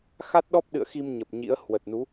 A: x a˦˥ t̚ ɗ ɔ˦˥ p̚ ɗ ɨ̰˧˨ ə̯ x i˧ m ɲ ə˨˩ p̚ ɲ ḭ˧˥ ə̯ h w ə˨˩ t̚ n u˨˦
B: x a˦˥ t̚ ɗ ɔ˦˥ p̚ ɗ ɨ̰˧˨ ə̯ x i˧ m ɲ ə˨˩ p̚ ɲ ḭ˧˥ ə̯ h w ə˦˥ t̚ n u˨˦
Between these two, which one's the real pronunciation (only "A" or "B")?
A